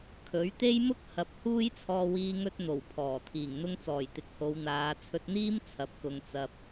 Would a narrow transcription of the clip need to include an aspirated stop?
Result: yes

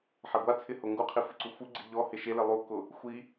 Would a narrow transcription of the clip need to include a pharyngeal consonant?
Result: yes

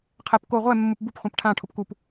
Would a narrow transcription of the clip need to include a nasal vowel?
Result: yes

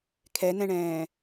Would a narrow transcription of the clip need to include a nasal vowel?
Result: yes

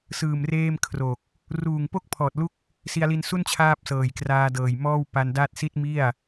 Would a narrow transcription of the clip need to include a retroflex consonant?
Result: no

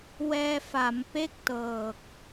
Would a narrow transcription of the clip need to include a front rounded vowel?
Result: no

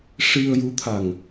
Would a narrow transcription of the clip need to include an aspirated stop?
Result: yes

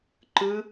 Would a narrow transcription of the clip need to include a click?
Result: yes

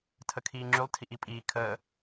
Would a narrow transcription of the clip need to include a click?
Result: yes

